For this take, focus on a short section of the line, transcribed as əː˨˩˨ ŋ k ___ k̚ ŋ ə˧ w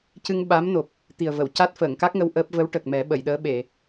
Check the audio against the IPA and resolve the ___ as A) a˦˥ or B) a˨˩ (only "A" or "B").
A